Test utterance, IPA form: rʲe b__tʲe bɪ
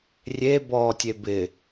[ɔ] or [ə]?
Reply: ɔ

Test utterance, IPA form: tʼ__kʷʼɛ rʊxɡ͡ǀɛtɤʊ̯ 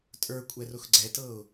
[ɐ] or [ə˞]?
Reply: ə˞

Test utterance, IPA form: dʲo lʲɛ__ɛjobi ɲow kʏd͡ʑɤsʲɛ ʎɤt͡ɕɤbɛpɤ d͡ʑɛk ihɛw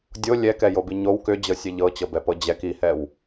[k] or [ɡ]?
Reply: k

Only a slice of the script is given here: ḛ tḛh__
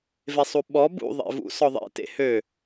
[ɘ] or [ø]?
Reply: ø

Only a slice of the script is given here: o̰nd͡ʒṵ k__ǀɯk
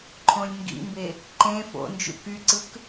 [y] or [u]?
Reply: y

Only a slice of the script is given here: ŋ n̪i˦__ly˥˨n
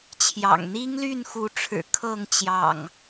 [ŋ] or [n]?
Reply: ŋ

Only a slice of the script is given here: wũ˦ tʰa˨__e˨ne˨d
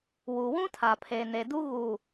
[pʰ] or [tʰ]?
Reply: pʰ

